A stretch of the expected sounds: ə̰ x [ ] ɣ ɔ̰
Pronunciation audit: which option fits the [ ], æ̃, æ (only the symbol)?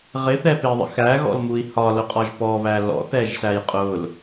æ